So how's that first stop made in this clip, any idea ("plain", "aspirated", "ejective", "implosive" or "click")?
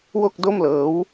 plain